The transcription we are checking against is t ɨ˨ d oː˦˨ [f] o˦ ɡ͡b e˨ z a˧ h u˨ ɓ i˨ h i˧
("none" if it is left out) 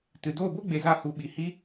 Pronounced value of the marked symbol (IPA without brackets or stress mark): b